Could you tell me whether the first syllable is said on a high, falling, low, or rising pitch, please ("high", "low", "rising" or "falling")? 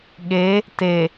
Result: rising